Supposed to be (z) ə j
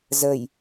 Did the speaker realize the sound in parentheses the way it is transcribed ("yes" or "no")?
yes